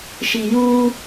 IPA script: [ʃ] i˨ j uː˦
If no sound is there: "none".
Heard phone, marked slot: ʃ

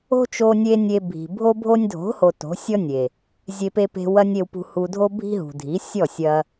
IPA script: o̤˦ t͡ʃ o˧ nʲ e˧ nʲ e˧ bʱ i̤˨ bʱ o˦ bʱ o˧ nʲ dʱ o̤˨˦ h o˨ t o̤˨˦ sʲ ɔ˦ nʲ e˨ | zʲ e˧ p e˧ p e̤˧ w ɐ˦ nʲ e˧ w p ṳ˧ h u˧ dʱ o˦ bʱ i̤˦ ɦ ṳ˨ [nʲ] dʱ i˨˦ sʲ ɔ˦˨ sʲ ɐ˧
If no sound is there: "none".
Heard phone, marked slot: none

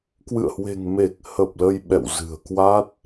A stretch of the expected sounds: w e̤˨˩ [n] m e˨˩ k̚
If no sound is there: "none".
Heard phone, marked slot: ŋ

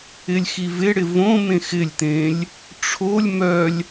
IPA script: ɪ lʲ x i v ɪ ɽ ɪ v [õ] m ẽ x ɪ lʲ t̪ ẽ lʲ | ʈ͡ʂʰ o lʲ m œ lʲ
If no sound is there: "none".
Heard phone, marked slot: õ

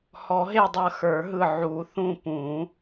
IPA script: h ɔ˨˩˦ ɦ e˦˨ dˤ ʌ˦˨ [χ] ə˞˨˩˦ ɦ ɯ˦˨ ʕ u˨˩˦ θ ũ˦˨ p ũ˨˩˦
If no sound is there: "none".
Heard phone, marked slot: x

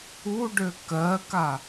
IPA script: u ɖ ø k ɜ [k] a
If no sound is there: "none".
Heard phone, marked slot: k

